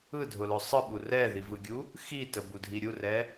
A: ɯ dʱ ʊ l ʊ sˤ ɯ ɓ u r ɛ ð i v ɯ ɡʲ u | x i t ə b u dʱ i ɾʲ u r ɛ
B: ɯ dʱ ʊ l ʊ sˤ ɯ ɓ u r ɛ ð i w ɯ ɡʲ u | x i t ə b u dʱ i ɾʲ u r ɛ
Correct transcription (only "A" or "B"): A